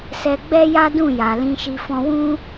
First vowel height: mid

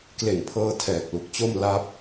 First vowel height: mid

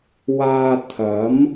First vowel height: low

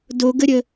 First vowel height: mid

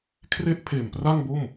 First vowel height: mid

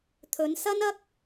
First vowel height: mid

